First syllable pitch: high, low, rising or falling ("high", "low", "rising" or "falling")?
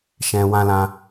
low